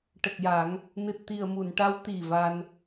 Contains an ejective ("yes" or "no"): no